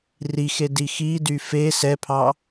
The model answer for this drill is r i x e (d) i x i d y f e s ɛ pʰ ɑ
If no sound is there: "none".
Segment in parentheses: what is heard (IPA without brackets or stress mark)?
d